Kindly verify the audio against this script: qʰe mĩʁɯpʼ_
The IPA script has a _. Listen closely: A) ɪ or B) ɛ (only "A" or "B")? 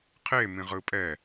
B